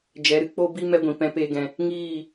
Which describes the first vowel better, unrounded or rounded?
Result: unrounded